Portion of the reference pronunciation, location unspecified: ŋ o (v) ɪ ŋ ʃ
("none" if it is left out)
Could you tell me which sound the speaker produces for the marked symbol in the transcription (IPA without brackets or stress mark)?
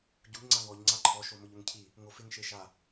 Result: f